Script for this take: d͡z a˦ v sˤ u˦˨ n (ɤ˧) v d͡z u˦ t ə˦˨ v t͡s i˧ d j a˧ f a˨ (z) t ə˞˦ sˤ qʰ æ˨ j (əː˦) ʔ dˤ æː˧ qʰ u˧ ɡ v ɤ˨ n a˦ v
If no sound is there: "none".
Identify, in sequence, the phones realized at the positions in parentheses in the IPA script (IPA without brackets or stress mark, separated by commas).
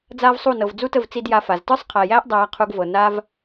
ɤ˨, z, æː˦